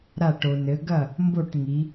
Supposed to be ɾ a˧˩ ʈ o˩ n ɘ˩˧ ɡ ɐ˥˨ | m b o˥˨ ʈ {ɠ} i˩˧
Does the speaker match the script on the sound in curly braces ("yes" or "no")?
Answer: no